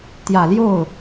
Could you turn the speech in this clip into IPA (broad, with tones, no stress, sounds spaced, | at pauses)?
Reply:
t̪ j ä˨˩ l j o˥˩ ʊ̯